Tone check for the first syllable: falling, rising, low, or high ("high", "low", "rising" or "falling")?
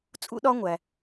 high